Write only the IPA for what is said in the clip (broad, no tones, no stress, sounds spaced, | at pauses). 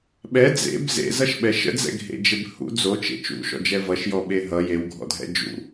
ɓ ɛ d͡z ḛ b z ḛ z ʌ ʃ ɓ ɛ ʃ ə̰ d͡z ɛ̰ ɡʱ ḛ d͡ʒ e b h ṵ d͡z o t͡ʃ ḛ t͡ʃ ṵ ʃ ɔ̰ d͡ʒ ɛ v ʌ ʃ j ɔ ɓ e ɦ ʌ j e w ɡʱ ɔ̰ dʱ ɛ̰ d͡ʒ ṵ